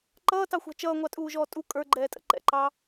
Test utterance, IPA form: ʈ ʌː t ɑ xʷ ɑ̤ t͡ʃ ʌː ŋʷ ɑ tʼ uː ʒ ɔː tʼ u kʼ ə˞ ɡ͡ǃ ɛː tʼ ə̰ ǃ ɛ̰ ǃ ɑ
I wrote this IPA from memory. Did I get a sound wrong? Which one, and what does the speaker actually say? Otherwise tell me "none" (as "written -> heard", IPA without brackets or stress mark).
ʈ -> ǃ